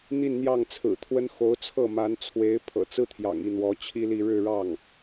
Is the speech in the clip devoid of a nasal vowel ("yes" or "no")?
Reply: yes